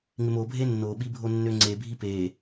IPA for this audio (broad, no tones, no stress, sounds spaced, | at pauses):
ŋ ɪ m o bʱ e nː o ɓ i bʱ o nː ø ŋ͡ǀ e bʱ i p e